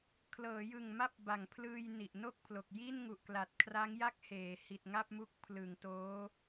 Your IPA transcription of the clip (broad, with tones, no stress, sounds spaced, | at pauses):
kʰ l ɤː˩˦ j ɯ˨˩ ŋ m a˦˥ p̚ b a˨˩ ŋ pʰ l ɯː˧ j n i˨˩ ʔ n o˥˩ k̚ pʰ l o˨˩ k̚ j i˥˩ n ŋ u˨˩ ʔ k l a˨˩ t̚ kʰ r a˦˥ ŋ j a˥˩ k̚ h eː˩˦ h i˨˩ t̚ ŋ a˥˩ p̚ m u˦˥ k̚ pʰ l ɯ˩˦ ŋ t oː˦˥